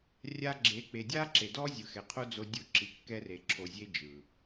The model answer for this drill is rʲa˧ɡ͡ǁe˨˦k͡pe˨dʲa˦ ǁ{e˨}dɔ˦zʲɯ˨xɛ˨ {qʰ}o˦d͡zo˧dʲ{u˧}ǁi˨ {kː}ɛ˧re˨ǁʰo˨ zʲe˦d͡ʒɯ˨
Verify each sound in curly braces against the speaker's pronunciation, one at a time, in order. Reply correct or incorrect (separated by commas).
correct, correct, incorrect, correct